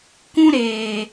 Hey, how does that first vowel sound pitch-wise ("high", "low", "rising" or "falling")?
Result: high